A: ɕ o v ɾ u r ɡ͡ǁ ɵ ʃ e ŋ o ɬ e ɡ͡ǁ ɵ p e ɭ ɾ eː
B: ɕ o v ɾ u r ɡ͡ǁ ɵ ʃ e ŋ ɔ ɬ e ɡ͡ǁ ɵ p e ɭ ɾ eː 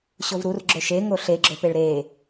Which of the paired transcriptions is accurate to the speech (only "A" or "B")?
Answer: A